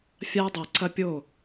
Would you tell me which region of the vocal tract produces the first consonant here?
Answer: lips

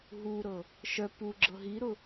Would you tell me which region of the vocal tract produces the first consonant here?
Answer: throat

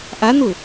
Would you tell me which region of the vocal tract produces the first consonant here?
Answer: throat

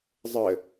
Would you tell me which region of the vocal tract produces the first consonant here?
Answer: tongue tip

